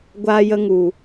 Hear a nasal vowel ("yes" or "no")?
no